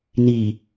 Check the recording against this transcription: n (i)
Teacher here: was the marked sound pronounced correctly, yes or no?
yes